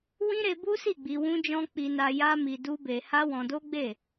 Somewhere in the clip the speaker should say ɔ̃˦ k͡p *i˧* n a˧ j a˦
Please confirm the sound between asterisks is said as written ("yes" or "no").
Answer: yes